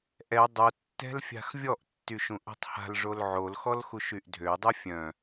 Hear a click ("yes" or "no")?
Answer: no